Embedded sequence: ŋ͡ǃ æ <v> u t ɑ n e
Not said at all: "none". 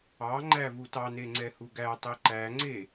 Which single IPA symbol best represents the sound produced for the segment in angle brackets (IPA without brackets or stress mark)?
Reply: v